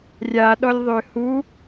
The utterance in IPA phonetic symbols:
rʲ a ɗ ɔ lʲ ðˤ ø h u

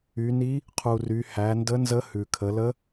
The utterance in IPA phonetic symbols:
y˩˧ n i˧˥ | qʰ u˩ r y˩˧ h æ˩˧ n d ə˧˥ n z ə˧˥ h ʉ˩ kʰ ə˩˧ l ə˧˥

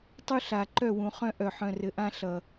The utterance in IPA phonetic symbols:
tˤ u˦ ɬ a˨ ǃ œ˦˨ w ũ˨ χ œ̃˦ ʔ œ˨ ħ œ̃˨ r ɘ˨ ʔ ã˦ ɬ ʌ˨

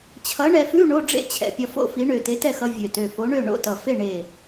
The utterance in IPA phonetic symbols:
t͡ɕʰ ʌ˨˥ ɳ ɛ˧ f ʉ˧˥˧ ɳ o˧˥˧ ɖ͡ʐ ḛ˥˩ t͡ɕʰ ɛ̰˧˩ pʲ ɒ˧ f o̰˥˩ f i˨˥ ɳ ø˧˩ t e˨˥ t ɛ˥˩ x ʌ˧ vʲ ø˧˩ t ø˧˩ f o˨˥ ɳ ø˥˩ ɳ o̰˥˩ t ʌ˧˩ f e˥˩ ɳ e˧˩

